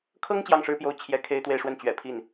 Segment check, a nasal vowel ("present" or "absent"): absent